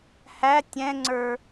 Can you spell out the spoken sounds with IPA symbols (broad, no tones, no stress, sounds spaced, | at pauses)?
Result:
h æ tʲ ɛ̃ ŋ͡ǀ ə˞